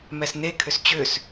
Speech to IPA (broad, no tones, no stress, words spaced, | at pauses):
mɛsnekʰʏs t͡ɕʏs